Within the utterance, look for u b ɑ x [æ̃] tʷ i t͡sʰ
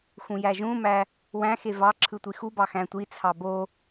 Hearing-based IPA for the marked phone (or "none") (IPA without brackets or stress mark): æ̃